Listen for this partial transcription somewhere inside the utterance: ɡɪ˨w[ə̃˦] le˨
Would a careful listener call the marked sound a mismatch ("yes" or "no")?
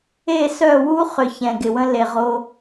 no